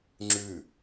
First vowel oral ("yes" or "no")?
yes